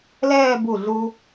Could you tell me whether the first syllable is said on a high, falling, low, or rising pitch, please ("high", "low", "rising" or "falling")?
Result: falling